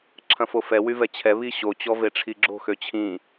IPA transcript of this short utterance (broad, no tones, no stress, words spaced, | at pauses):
ǁʰɐ̃fofɛ wyvɛt͡ɕʰɛ βiɕo t͡ɕɔveʈ͡ʂʰiɡ͡ǁo̤ xøt͡ɕʰĩ